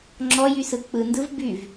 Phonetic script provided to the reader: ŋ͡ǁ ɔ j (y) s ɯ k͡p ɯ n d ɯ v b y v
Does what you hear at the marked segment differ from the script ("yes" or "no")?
no